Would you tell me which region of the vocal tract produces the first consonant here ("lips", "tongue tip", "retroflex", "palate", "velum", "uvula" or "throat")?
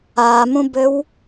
lips